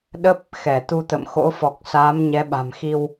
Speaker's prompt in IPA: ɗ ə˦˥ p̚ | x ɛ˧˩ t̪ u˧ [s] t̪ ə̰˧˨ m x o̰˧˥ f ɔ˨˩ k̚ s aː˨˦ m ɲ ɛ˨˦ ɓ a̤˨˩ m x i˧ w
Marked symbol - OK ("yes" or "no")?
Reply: no